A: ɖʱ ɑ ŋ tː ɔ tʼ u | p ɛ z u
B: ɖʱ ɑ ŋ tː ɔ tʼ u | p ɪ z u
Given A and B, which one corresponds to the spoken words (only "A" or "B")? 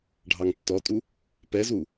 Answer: A